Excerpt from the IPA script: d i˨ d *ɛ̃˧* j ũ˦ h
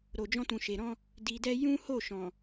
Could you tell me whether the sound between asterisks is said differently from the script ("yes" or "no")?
yes